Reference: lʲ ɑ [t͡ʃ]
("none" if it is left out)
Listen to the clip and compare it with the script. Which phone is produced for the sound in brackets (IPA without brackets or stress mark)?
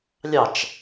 t͡ʃ